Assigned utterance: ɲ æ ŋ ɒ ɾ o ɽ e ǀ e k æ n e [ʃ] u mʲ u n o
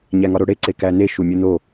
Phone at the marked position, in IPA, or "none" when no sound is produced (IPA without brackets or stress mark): ʃ